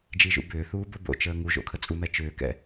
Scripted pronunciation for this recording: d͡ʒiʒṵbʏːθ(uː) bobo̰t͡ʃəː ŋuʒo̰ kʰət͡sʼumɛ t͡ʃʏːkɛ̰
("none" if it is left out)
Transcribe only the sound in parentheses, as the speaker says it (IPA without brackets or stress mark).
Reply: uː